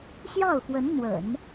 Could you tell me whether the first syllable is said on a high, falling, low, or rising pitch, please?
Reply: falling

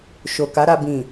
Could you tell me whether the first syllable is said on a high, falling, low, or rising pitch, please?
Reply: low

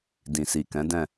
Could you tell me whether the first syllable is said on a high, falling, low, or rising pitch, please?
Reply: low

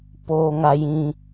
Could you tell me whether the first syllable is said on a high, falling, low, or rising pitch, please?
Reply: low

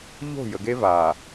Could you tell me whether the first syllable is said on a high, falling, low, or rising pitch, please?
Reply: falling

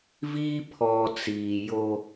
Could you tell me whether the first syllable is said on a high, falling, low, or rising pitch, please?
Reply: high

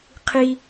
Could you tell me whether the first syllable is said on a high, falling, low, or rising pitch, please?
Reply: low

